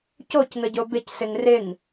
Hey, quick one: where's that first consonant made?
palate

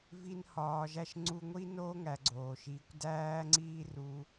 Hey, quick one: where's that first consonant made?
lips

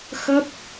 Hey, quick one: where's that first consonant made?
velum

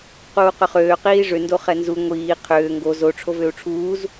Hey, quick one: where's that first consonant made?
uvula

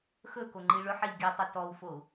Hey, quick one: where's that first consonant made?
velum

